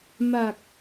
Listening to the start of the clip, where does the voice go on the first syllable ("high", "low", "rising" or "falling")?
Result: low